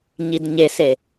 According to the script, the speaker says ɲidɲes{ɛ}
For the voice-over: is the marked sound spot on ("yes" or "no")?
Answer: no